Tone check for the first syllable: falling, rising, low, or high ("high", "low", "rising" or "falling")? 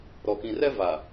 low